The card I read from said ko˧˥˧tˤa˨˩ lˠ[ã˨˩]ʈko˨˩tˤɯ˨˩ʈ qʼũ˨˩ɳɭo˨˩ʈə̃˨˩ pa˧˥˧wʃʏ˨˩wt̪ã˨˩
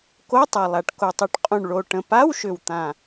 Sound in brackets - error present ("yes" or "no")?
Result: yes